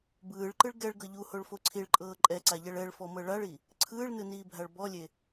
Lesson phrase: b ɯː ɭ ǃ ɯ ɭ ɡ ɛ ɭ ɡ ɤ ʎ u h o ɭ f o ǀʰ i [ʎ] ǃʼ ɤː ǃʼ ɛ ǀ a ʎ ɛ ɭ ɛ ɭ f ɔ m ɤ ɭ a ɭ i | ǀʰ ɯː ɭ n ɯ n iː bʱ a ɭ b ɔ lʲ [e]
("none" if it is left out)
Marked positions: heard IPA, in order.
ɭ, e

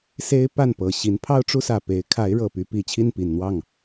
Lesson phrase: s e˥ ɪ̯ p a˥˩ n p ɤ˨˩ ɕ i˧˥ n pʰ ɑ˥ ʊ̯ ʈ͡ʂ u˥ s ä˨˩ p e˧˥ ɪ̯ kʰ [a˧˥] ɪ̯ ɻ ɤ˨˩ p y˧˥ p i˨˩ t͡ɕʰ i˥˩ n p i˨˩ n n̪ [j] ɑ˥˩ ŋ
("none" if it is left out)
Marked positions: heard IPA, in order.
a˧˥, w

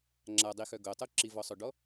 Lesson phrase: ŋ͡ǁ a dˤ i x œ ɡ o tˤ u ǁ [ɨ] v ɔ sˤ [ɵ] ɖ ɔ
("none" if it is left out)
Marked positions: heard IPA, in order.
i, ø

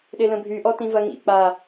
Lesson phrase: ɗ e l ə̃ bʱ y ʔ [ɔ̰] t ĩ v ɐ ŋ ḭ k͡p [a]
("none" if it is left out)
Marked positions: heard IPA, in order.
ɔ, a

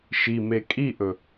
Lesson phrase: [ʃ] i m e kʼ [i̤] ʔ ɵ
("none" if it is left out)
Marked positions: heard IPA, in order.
ʃ, i

